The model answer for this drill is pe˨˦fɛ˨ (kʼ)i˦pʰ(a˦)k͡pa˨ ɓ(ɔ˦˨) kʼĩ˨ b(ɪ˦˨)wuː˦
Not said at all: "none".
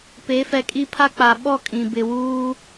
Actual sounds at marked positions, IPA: kʼ, a˦, ɔ˦˨, ɪ˨

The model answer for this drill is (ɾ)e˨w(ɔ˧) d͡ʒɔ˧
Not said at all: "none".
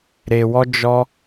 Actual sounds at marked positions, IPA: ɾ, ɔ˧

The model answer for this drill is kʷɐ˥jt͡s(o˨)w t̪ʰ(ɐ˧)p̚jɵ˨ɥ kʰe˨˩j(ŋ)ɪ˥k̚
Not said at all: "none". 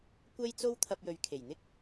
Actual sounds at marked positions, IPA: o˥, ɐ˧, n̪

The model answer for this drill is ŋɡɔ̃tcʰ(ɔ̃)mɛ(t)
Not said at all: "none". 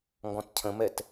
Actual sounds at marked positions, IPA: ə̃, t

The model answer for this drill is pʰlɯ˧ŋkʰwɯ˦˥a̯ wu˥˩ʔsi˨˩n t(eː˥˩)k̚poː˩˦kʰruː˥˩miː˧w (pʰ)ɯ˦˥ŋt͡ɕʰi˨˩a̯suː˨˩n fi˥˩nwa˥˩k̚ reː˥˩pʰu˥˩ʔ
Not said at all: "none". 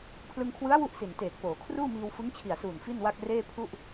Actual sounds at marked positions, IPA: eː˨˩, f

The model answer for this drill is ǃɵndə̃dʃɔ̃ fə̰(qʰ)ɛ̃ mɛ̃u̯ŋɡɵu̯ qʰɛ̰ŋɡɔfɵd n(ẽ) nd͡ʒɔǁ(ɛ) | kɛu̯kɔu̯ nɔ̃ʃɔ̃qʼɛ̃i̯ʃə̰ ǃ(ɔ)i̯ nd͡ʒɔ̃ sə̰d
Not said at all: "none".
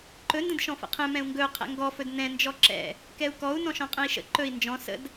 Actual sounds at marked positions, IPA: qʰ, ɛ̃, ɛ̰, ɵ

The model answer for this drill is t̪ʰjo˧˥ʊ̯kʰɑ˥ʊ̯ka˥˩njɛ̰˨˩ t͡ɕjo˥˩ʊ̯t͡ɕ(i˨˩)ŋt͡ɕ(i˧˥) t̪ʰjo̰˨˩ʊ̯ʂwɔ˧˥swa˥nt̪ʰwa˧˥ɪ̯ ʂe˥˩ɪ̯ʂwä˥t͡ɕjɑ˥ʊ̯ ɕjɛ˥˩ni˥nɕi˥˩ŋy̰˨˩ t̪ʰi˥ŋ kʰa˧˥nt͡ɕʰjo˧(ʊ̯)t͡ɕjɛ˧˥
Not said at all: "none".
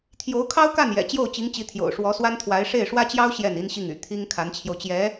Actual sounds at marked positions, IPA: i˧˥, i˧˥, ʊ̯

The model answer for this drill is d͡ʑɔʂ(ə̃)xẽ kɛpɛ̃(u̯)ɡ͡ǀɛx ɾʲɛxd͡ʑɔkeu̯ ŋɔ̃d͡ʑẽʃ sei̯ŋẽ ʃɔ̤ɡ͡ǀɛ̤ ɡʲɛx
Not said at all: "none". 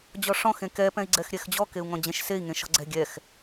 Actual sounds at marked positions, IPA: ɔ̃, i̯

